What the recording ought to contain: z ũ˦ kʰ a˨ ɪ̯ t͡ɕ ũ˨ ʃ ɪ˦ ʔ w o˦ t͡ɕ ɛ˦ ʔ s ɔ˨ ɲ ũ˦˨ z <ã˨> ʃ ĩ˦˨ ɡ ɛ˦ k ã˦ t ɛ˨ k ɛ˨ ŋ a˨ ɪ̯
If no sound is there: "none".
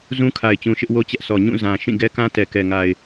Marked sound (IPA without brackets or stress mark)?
ã˨